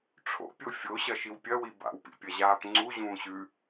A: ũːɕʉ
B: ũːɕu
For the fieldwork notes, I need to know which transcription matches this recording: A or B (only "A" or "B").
A